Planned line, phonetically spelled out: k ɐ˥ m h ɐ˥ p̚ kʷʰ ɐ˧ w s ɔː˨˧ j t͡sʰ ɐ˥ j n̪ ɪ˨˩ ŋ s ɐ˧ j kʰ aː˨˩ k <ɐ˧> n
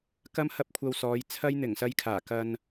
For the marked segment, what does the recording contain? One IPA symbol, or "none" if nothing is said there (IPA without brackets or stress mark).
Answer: ɐ˧